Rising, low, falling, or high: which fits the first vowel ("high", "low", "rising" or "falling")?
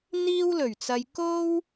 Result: high